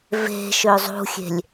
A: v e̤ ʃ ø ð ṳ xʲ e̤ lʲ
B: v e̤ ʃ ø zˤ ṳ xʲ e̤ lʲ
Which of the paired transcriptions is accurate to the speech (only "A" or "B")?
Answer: B